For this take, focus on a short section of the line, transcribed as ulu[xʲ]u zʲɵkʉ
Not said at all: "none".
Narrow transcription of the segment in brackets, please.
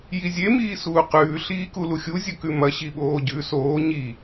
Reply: xʲ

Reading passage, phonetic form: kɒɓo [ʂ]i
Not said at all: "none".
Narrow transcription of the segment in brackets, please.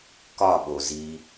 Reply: z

